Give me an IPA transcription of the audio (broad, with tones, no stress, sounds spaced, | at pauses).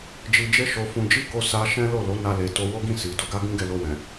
d͡ʒ i˧ d͡ʒ e˦ ʃ o˧ f ũ˧ d͡ʒ i˦ k o˧ s a˧ ʃ ɛ̃˦ l o˦˨ l o˨˦ n a˧ l e˧ t o˦ w o˦ ɡ ĩ˦˨ s i˨ d o˧ ɡ a˦ ɡ ũ˦ ɡ ɛ˧ l o˧ w ɛ̃˨